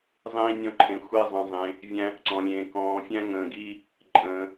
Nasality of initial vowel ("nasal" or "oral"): nasal